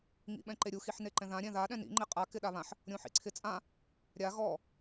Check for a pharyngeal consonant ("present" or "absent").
present